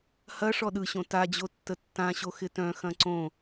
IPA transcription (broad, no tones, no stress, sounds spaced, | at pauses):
h ɐ ʂ ɔ ɗ ɯ ɕ õ t a d͡ʑ o tː ə tː ã ɕ o x ɪ t œ̃ x ɐ̃ ǀ õ